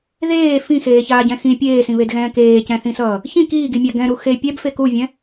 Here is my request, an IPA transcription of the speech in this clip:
ðeː fĩxeːçaːɟɛ̃ xĩ pʲeːsĩβedɣɛ̃ː keːcɛ̃θĩsʌː | çĩ kiːɡimʲa ɡɛ̃ɾu xe pʲɛbfe kuvʲɛ̃

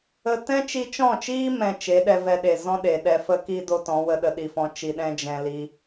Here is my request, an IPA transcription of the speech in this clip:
ə˧ tɛ̃˦t͡ʃi˧t͡ʃɔ̃˦˨t͡ʃiː˦ mɛ̃˧t͡ʃe˨˦ɗɛ˧ vɛ˧ɗe˨ zɔ̃˦ɗe˨ ɗɛ˧ fə˦ki˦ do˦tɔ̃˨˦ wə˧ɗə˧ɗi˨fɔ̃˧ t͡ʃi˨ɗɛ̃˧ d͡ʒɛ̃˧ li˦

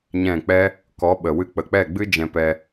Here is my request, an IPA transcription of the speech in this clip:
ɲɛ̃˦˨k͡pɛ˦ | kɔ˨˦ɓə˨wɨ˧ k͡pə˨k͡pɛ˦˨ɡ͡bɨ˦ d͡ʒɛ̃˧pɛ˧

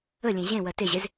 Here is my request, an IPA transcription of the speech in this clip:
əlʲẽ ʑẽwɜ teʑez

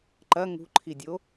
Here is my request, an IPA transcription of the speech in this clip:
ǃɐ ŋṳǃʰidʲo

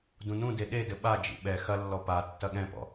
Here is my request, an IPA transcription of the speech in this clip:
dũnũde ɗedɘ ɓad͡ʒḭ ɓɛ xɐlːɔ pa tːɐɠɛ̃pɔ̰

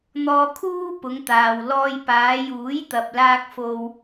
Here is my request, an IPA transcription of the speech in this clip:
n̪ɔː˧kʰuː˥ pʊ˨˧ŋt̪aː˨w lɔː˧jpaː˨˧ juː˨˥jt̪ɐ˨p̚laː˧k̚fo˧w

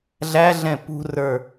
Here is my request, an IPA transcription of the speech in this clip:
ɮæɮɛ̃ pṳrə˞

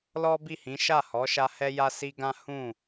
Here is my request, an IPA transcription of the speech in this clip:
lɔ˦bi˦˨hĩ˨˦ ʃa˦˨hɔ˨˦ʃa˧ hɛ˦ja˦si˦ɡã˦ hũ˦˨

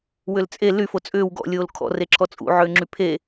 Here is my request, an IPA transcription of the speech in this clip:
wʏlt͡sʼe ly fot͡sʼʏːw ɡɔ̰lʲoːl kʰɔ̰reǁʰɔ t͡sʼṵʕʏːŋ͡ǁy pʰe

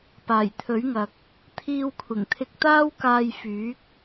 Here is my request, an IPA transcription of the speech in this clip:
paː˨˩jt̪ʰɵ˨˥ɥŋɐ˨k̚ | t̪ʰiː˧wkʷʰɪ˨˩ŋt̪ʰɪ˧k̚ t̪aː˥wkaː˧jfyː˨˥k̚

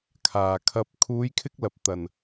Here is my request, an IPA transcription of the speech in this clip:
kʰaː˨kʰɐ˧p̚ kʰuː˨˧jkʰɪ˧k̚lɐ˨p̚ t̪ɐ˨n

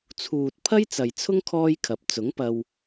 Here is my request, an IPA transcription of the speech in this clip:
t͡sʰuː˨t̚pʰɐ˥j t͡sɐ˨jt͡sʰʊ˥ŋ kʰɔː˥jkʰɐ˨˥p̚ t͡sʊ˨˥ŋpɐ˧w

